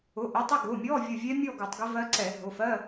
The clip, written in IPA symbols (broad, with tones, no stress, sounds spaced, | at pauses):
ʊ˩˧˩ ʔ ʊ˩˧˩ tˤ ə˥˧ ɡ ʊ˩˧˩ mʲ ɔ˧˥˧ vʲ ʊ˧˩ vʲ ɛ˦˥ mʲ ɔ˥˧ ɡ u˧˩˧ tˤ ɡ ɪ˦˥ v ɜ˦˥ ǀ ɛ˧˩˧ ɦ ʊ˩˧˩ f ɜ˧˥˧